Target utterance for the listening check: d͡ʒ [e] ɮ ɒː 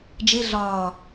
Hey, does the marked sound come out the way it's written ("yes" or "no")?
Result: yes